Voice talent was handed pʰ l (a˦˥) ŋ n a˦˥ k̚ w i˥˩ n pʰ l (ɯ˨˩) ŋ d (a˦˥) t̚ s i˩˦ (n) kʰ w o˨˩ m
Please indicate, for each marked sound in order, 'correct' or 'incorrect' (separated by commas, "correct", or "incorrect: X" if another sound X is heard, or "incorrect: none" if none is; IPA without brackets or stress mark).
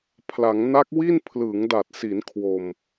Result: incorrect: a˩˦, incorrect: ɯ˩˦, incorrect: a˨˩, correct